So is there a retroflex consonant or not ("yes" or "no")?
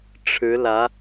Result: yes